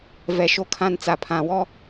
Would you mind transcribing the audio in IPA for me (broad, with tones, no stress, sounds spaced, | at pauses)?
v ɛ˨ ʃ o˨ kʰ ã˨ n t͡s a˨ pʰ ã˨ w ɔ˦